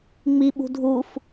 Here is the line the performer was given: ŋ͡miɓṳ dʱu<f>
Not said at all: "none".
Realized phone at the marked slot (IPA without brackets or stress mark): f